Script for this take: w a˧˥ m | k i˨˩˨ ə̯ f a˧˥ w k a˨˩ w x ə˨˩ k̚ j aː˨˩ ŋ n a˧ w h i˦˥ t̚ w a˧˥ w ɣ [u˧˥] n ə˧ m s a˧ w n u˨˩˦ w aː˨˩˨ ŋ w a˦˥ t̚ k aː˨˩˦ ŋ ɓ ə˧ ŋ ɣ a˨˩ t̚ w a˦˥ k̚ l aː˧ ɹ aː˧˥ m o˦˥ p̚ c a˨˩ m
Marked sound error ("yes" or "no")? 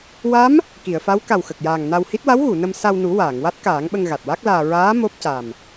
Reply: yes